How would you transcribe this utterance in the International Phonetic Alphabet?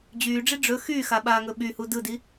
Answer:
d͡ʑ yː ɖ͡ʐ i ɖ͡ʐ ɵ x yː x a ɓ aː ŋ ɵ ɓ y h u d ɯ d i

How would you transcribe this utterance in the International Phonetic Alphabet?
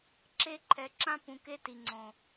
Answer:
ǁ e˦ ǃʰ ɛ˨ ǁ ã˦ p ũ˨ k e˦ t i˨ ŋ͡ǀ õ˨

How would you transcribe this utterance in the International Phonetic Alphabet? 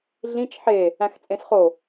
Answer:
ɮ ĩ t͡ʃ ħ e | æ̃ x t͡sʼ ẽ s χ o

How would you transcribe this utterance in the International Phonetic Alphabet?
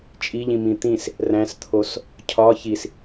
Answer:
t͡ʃʼ i ʎ ĩ m ĩ t̪ ĩ s | r æ̃ s t̪ʰ o s | cʰ ɒ ç i s

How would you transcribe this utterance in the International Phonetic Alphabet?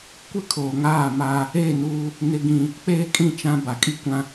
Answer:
kʷ ɪ˦ kʰ oː˨ ŋ aː˦˨ m aː˦ | e˦˨ n uː˦ | n ɪ˦ ɡ ĩ˦ | k͡p eː˦ kʼ ĩ˦˨ t͡ʃ ã˦ b a˨ kʼ i˦ kʷ ã˦

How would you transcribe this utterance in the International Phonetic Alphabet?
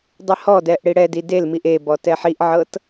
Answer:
dˤ i h ɔ d ɛ ʔ ɽ i ɽ ɛ d i d e l m i ʔ e b ɔ t ɛ ħ i ʔ ʕ ɤ t

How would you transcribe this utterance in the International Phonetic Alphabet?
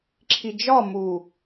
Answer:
ǁʰ i d͡ʒ ɒ m u

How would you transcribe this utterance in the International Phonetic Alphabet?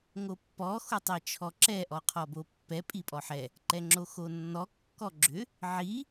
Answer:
ŋ o pː ɔ x o tˤ i t͡ʃʰ ɔ ǁ ɛ ʔ ɔ qʰ ɔ b o pː ɛ pʼ i pʼ ɔ ħ ɛ | ǃ ɛ ŋ͡ǁ o x o nː ɔ kː ɔ ɡ͡ǁ ʏ | ʕ i

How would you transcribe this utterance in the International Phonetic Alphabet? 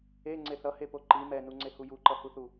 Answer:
e ŋ͡ǀ e θ ʌ h e p o ǃ i m ɛ n u ŋ͡ǀ e h u j u ǃ ʌ h u θ u

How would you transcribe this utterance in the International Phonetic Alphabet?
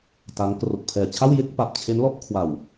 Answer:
t a˦˥ ŋ k r o˨˩ k̚ pʰ ɛː˨˩ t͡ɕʰ a˥˩ w j e˥˩ k̚ p a˨˩ p̚ t͡ɕʰ e˦˥ n l ɔ˦˥ ʔ kʰ w a˨˩ w

